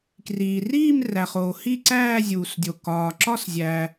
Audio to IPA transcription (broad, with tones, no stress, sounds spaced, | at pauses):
k r iː˨ r iː˥˧ m r æ˨ χ oː˨ h i˥˧ ǀ æː˥˧ zʲ uː˨ s dʲ o˨ k ɒː˨ ǁ ɒ˥˧ s zʲ æː˨